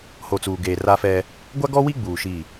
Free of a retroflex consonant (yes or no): yes